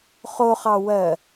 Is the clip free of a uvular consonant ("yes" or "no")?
no